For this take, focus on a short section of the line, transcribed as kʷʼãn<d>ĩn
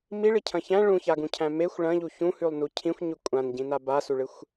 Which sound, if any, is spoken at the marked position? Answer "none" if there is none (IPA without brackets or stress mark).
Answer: ɟ